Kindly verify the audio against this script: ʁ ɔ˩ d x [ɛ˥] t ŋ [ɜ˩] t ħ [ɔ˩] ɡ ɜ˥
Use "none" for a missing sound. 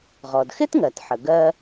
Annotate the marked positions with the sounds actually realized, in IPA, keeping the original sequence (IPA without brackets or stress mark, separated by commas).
ɪ˥, ɜ˩, ə˩